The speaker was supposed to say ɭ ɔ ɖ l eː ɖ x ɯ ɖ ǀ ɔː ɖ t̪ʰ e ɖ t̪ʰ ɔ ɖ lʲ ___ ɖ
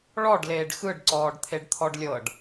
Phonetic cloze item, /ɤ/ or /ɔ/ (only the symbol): ɤ